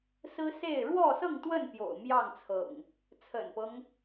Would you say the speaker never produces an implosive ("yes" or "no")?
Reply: yes